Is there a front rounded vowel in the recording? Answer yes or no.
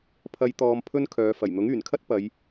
yes